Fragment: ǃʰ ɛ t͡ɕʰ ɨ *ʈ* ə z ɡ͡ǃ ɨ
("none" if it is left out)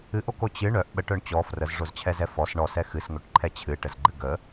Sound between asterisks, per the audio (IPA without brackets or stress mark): ʈ